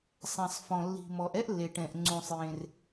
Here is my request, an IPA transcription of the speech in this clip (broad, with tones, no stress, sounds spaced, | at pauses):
sˤ ɛ̃˩ sˤ f ɔ̃˩ lː i̤˩ m ɔ˩ ʔ ɛ˥ ʔ lː e˩ ʈ ɛ̃˩ ʔ ŋ͡ǀ ũ˩ sˤ j ẽ˩ r